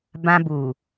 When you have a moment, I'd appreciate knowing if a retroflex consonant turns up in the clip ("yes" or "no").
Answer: no